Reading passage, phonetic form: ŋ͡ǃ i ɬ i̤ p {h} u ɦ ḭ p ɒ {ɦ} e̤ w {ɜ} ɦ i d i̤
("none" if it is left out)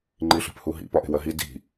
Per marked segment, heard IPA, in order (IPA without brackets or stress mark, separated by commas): h, ʔ, ɜ